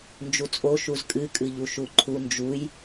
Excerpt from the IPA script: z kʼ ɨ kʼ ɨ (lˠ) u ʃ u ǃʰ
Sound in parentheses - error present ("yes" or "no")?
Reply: yes